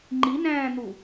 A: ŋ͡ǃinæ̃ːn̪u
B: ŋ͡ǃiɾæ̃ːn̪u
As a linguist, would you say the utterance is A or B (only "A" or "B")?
A